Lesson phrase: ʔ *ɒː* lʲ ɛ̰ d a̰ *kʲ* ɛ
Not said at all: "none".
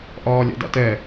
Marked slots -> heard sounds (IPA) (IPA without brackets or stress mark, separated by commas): ɒː, t